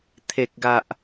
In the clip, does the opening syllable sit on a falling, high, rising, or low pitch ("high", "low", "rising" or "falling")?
low